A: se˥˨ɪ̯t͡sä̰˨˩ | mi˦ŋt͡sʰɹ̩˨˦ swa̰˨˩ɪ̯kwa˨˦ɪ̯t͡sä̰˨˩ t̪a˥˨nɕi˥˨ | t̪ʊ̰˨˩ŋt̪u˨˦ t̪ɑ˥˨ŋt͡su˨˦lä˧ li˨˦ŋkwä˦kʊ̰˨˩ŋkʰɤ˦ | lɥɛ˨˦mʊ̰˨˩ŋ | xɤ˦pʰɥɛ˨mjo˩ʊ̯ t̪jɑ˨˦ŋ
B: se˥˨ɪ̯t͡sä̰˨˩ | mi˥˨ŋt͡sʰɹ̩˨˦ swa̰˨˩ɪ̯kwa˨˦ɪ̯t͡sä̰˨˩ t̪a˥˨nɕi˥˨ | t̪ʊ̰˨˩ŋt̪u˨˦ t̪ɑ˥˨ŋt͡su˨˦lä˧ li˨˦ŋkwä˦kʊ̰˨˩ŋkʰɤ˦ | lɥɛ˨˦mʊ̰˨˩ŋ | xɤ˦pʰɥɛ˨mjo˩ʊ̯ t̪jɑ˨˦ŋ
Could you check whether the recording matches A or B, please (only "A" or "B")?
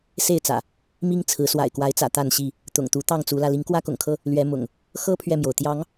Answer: A